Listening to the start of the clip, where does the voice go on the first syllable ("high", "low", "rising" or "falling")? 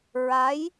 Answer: rising